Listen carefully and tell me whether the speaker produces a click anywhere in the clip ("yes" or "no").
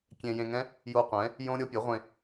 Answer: no